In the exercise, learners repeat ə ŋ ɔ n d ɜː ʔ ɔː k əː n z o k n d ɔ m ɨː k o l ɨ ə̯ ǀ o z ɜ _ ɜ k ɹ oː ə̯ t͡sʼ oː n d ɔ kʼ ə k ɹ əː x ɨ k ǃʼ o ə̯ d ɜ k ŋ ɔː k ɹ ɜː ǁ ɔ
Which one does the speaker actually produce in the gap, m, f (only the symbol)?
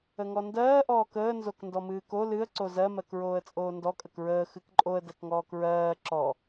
m